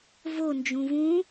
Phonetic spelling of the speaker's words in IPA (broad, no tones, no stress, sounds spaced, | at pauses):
v o n d͡ʒ ũ v ũ